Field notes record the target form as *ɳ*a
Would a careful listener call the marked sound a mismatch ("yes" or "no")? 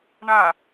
no